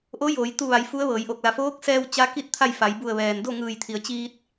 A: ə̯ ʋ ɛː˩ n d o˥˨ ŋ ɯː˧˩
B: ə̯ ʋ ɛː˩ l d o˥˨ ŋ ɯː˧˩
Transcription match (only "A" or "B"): A